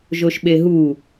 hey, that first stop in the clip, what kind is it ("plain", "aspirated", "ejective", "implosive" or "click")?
implosive